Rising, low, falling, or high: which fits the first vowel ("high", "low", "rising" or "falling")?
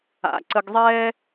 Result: low